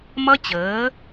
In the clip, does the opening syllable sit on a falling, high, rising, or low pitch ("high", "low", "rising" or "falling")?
high